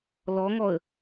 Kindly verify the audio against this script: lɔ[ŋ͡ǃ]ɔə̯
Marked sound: incorrect: ŋ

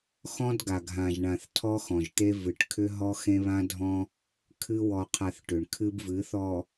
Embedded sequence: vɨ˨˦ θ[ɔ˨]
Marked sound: correct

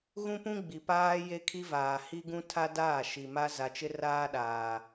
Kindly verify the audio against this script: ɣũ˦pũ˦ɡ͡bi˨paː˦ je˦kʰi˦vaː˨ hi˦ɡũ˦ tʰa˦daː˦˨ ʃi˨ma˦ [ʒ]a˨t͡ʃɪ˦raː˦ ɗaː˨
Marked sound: incorrect: z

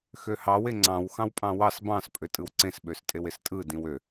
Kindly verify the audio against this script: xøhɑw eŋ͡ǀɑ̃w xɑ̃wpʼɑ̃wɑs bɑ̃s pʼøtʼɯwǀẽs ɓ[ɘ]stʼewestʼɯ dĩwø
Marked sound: incorrect: ø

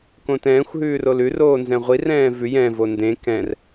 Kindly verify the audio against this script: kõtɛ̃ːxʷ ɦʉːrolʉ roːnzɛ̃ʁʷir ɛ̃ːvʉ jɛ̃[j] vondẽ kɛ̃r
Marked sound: incorrect: none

